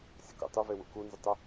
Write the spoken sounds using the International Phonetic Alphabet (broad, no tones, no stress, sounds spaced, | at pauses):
sʲ ə k ṵ tˤ u v e w ṵ k u n z y tˤ ə